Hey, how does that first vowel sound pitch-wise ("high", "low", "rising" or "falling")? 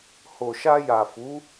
low